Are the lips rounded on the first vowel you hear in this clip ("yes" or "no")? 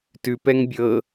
yes